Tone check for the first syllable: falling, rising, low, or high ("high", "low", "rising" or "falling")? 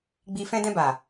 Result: low